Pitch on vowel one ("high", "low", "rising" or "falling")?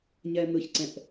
low